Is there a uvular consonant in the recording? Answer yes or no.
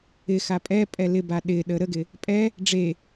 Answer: no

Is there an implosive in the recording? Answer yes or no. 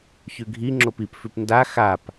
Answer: no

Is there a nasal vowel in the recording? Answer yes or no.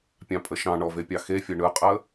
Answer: yes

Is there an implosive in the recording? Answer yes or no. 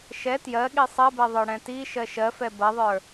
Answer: yes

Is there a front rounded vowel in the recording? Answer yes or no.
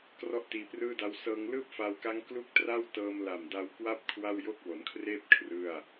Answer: no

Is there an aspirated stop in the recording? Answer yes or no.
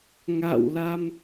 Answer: no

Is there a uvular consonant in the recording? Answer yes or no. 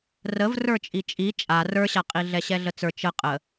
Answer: yes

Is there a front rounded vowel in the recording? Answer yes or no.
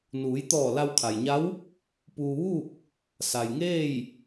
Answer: no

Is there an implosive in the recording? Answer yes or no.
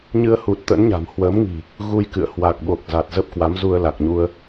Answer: yes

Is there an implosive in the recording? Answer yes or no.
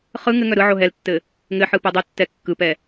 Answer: no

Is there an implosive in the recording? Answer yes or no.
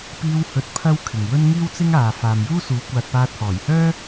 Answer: no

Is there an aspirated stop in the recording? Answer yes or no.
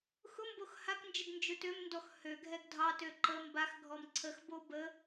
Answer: yes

